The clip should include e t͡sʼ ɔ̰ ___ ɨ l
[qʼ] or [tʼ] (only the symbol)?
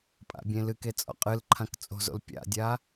qʼ